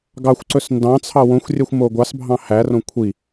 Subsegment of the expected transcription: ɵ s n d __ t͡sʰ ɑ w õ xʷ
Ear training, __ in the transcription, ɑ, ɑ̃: ɑ̃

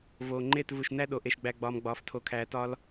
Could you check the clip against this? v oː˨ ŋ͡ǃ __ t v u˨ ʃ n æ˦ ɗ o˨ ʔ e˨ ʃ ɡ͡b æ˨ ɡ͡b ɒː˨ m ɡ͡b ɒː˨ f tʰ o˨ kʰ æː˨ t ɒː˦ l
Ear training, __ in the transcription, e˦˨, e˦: e˦˨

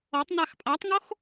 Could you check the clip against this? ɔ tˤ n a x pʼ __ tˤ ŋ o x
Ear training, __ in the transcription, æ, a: a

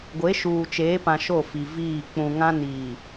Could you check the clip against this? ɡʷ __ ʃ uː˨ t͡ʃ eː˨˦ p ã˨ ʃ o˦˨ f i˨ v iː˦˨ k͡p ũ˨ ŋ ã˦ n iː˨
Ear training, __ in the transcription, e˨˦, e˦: e˨˦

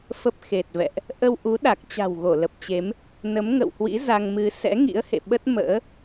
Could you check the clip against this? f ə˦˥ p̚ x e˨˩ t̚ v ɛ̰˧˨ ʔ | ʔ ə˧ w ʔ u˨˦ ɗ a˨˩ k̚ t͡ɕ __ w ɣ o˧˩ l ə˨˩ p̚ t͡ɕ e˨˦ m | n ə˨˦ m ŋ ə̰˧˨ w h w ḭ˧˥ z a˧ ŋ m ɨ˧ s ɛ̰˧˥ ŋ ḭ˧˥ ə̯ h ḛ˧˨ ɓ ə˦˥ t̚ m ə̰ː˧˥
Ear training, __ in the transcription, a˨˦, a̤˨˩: a̤˨˩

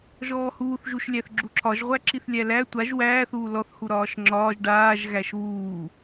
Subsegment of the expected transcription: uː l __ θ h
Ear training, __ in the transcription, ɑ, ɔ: ɔ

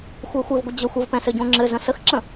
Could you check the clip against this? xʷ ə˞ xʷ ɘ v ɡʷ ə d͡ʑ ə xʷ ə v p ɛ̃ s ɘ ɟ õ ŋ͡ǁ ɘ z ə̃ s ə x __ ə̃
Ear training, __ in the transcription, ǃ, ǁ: ǁ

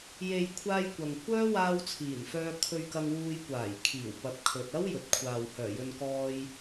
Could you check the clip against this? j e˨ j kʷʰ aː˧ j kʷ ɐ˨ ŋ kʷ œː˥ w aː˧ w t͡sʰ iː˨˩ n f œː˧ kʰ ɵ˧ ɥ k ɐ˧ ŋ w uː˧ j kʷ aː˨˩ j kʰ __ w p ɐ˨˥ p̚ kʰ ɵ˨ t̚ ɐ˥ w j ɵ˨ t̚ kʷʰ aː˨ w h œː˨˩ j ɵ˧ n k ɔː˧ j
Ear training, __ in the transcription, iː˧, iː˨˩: iː˨˩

